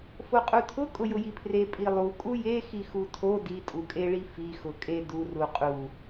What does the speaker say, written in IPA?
foqʼutʰʊ kʼʊjʊjipʰre pʼilˠu kʼuje xixutʰo ditʼukʼeɭi fixʊ kʼe du ruqʼu

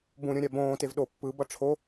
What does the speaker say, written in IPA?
bũɾʲõ ɾʲabõːtev ɗo pːɯbʌ ʈ͡ʂʰo

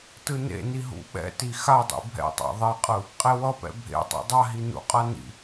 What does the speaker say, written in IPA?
tɯnḛni ɦṵɓɛ̰ti xadˤḭ bʱɛ̰tˤa̰ ðˤiqʼɯ | qʼewʌpɛ̰ bʱḛtˤḛ dˤaɦi nṵqʼa nḭ

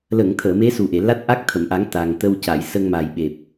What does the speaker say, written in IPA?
lə˨˩˨ŋ t̪ʰəː˨˩˨me˧˥su˨˩ ʔe˨˩˨la˦˥t̚ʔa˦˥k̚ t̪ʰə˨˩˨mʔa˨˩˦ŋ t̪a˨˩ŋt̪ə˧wca˨˩˨j sə˧ŋma˨˩jɓe˨˩p̚

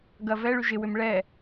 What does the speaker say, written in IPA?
ɡɐ vɛ ɭyʒɪwʏm ɭɛ

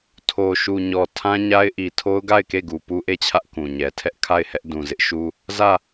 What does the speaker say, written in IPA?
tʰo˨ʃu˨ɲɔ˨ tʰã˦ɲa˦ɪ̯ʔi˨ tʰo˦ʊ̯ɡa˦˨ɪ̯ke˦˨ɡu˨ pu˦ʔe˦˨t͡ɕʰä˦ʔ kũ˨ɲɛ˨ tʰɛ˦ʔkʰa˦˨ɪ̯hɛ˦ʔ dũ˨zɪ˦ʔʃu˦ | zä˦˨

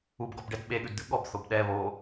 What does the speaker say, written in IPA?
ubɡɔbɖɛd ɓeɠʉdd̪ʉ ɠɔbθob ɗɛ βo

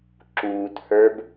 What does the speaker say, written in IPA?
ǁuːt hə˞b

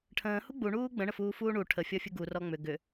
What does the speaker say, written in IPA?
ʈʰə̃ːhu ɡ͡buɳuː ɡ͡bə̃ɳəfuːfuː ɳu ʈʰəfʲɔfʲu ɡurɔ ŋ͡mʏ ɡʏ

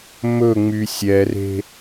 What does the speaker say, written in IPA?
mɵŋ͡my sʲɛre̤

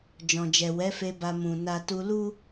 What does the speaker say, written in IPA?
d͡ʒɔ̃˨d͡ʒɛ˨wɛ˨˦fe˧ ba˨mũ˨ na˧ tu˧lu˦

